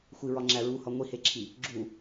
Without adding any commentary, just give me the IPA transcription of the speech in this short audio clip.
xʷiɹɒŋ͡ǁæ ɹuhɒ ŋʷiheǁʰi | ɡ͡ǁu

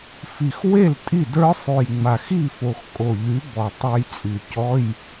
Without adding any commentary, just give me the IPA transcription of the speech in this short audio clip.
fi˨˩xwe˥˩l tʼi˥˩ də˞˦˥sˤʉ˨˩jŋ͡ma˨˩x i˥˩fo˨˩x kʼo˨˩ ʎy˨˥bɔ˨˩ tˤə˞˧jt͡sʼy˨˩ cɔ˧˥˧j

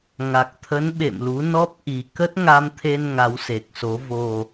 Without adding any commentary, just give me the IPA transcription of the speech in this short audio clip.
ŋa˨˩k̚t̪ʰə˨˦n ɓḛ˧˨mlu˨˦ nɔ˦˥p̚ ʔi˨˩ kə˦˥t̚ŋa˧mt̪ʰe˧n ŋa˨˦wse˨˩k̚so˨˦ vo˨˩

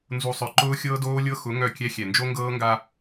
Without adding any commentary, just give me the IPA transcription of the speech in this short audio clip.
nzu˨sˤœ˨ ǃʊː˦xʲɤː˦doː˦lʲɤ˦ xʊ˨˦ ŋœ˦˨kʲɛ˦ xʲɛ˨nd͡ʒo˦ŋɡɤː˦ŋɡa˦

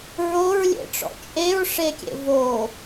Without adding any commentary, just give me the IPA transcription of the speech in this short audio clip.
ɹoɹlʲḛʈ͡ʂɔ̰ t͡ʃʼeɹʂekʲḛ vo

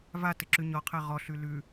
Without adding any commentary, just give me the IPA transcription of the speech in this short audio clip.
vatɘǁʉ ɲɔqʰɛ ʁɔɬʉ lʉ

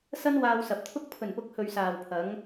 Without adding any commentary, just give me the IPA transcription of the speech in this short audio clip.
sɐ˥nwaː˧wsɐ˨p̚t̪ʰʊ˥k̚ pʰɵ˨˩npʊ˨˥k̚ hɵ˨ɥsaː˨wpʰɐ˨˧ŋ

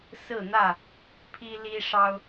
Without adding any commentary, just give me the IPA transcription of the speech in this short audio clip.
sɹ̩˥˨n̪ä˥˨ | pʰi˦li˦ʂɑ˦ʊ̯

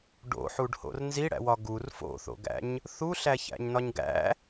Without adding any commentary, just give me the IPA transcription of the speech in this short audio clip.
ɖo̰ħuɖho̰r nziɽæ̰wɒ ɡur fo̰θo̰ɡæ̰ɲ | θuɬæçæ̰ɲnɒɲ ɡæ̰

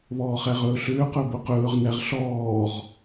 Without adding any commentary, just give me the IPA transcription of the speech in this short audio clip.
βɔːχæʁɵːɬʏː qɵbʊqɵːʁ næʁɬɔːʁ

